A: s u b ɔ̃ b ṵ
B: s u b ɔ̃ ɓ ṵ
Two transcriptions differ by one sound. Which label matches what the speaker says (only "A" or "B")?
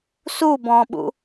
B